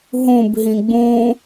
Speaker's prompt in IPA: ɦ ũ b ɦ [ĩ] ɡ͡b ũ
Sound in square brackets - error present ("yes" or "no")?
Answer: no